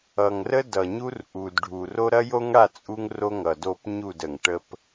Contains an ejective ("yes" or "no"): yes